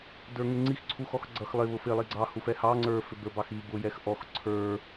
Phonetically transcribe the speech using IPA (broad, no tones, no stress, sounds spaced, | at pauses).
d ə˞ ŋ ɪ ŋ͡ǀ i x ǀʰ u x ɔ x ɡ͡ǀ ʌ x lˠ ɪ β ʊ f ɪ lˠ i ɡ͡ǀ ɑ h u f ɛ h ɑ ŋ͡ǀ ə˞ f ɪ b ə˞ b ɑ x i b ʊ j ɛ x ʔ ɔ x ǀʰ ə˞